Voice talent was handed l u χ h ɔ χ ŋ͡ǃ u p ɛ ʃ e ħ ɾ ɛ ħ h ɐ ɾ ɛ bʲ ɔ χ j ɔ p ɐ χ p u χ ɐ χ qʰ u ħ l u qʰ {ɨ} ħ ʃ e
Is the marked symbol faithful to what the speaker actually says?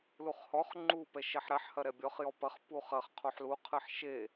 yes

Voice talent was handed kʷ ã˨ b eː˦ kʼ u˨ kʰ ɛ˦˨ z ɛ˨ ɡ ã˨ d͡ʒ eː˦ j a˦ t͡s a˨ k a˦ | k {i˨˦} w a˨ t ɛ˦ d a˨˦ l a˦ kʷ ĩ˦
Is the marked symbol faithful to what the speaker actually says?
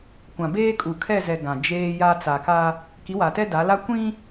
yes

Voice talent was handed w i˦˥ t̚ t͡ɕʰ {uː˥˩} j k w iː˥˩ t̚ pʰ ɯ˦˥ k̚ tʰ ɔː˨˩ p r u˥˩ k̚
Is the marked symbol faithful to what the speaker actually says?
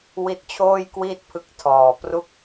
no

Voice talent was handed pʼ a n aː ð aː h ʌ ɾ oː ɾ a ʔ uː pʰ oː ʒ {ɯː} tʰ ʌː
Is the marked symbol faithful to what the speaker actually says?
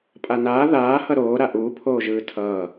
yes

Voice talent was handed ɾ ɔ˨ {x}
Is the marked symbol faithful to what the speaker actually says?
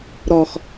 yes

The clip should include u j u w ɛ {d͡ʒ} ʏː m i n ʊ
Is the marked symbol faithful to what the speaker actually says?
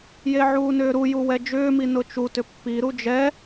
yes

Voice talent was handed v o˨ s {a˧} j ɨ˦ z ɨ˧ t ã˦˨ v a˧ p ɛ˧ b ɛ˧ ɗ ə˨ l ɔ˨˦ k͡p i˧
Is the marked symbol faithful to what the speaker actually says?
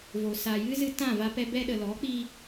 no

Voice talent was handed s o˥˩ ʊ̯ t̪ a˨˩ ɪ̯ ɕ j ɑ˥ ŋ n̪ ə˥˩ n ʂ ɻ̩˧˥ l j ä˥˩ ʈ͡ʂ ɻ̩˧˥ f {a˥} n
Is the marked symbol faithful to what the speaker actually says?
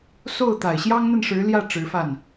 no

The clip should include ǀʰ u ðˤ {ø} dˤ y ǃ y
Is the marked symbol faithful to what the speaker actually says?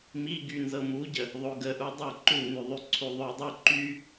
yes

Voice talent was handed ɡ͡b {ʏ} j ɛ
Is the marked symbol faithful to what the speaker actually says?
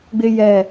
no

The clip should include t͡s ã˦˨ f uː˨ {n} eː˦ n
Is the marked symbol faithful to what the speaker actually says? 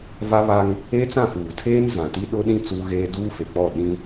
no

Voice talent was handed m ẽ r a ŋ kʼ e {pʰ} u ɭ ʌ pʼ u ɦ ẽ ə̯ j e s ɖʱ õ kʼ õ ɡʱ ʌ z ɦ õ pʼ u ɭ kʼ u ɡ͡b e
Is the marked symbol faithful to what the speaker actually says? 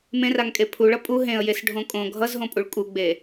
yes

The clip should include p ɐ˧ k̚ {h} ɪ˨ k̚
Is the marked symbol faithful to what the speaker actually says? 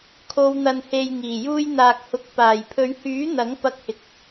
yes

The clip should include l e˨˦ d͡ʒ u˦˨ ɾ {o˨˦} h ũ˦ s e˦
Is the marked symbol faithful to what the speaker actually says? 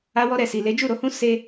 yes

